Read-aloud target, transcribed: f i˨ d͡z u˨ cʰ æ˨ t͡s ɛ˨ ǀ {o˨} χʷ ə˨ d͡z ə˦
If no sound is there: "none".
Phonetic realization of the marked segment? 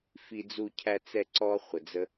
ɔ˨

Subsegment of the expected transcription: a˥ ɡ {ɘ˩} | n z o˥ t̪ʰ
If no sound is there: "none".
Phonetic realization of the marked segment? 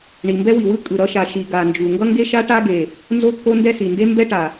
e˩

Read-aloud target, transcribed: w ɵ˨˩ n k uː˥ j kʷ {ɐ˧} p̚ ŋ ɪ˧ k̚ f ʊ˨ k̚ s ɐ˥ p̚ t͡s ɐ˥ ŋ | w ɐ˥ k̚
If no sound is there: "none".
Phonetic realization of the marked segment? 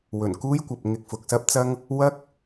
ɐ˨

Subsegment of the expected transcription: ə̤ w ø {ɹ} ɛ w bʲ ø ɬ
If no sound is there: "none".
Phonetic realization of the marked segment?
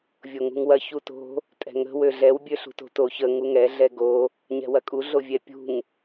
ɮ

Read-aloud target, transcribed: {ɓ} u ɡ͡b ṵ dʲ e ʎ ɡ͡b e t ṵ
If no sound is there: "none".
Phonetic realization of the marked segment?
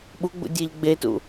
ɓ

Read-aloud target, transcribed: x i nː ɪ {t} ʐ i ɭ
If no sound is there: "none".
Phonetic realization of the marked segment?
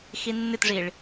t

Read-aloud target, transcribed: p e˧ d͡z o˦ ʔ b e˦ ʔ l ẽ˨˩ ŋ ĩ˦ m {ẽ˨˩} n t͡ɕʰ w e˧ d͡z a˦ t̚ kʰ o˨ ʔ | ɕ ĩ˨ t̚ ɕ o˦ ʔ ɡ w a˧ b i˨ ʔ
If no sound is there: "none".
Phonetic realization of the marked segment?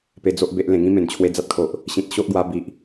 ẽ˨˩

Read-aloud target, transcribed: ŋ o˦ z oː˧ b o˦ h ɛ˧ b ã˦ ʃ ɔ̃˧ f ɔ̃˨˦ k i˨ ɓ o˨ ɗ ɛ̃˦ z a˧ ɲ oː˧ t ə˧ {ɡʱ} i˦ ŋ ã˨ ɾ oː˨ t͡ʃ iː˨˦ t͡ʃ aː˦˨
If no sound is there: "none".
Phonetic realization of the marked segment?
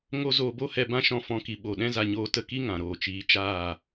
k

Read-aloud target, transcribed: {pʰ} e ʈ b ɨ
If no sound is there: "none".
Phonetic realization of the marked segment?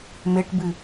m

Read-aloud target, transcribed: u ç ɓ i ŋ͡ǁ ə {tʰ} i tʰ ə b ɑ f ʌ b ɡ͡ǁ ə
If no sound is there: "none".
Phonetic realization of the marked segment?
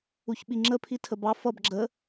pʰ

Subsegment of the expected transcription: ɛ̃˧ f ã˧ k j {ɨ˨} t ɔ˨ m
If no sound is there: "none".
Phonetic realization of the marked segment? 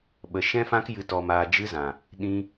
ɨ˨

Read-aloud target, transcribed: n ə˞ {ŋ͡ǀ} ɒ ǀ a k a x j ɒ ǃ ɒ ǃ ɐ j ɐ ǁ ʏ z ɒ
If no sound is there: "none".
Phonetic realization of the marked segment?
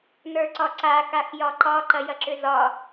ǀ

